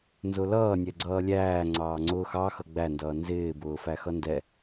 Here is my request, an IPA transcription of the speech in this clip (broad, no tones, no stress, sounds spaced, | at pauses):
n z ʊ l ʌː nʲ ɛ ɡ͡ǀ ʌː lʲ æː ŋ͡ǀ ɑː ŋ͡ǀ ʊː x ɑ x ʌ ɡ͡b æ n d ʌː n z ɪː b ʊː f æ x ʌ n d ɛ